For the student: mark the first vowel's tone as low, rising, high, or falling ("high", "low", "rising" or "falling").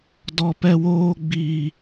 low